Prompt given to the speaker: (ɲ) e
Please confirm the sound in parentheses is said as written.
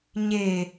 yes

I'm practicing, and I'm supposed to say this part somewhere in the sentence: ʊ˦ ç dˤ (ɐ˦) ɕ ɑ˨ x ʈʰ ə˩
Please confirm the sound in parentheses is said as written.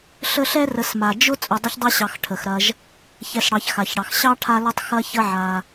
yes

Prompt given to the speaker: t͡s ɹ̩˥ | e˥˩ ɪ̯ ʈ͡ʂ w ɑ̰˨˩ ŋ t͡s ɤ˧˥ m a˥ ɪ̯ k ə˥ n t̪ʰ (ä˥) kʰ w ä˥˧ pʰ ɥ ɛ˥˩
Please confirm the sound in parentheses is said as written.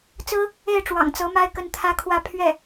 yes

